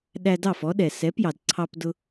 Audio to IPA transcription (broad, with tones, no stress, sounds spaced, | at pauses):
ɗ æ˧ d ɑ˥˩ f ɔ˩˥ ɗ ɛ˩ s ɛ˩˥ p j ɑ˩ d ǀʰ ɑ˧ p d ʊ˧